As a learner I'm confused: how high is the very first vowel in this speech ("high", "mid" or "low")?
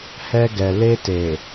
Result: mid